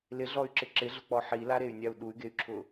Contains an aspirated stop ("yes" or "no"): yes